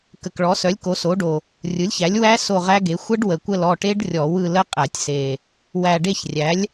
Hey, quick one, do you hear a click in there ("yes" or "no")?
no